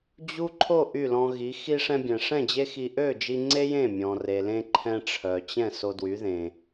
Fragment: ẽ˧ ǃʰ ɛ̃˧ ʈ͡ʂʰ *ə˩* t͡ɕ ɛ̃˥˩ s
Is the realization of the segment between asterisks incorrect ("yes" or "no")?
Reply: yes